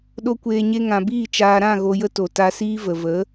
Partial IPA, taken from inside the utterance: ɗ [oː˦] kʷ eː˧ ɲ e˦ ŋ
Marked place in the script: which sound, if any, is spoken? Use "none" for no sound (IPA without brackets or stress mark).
o˦